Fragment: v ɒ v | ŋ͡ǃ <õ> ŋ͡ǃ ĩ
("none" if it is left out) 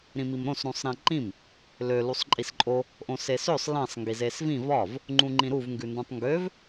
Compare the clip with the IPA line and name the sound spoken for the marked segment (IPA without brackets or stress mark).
ũ